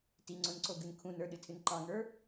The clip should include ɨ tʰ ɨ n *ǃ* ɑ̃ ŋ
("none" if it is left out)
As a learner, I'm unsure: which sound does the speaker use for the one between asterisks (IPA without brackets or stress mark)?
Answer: ǃ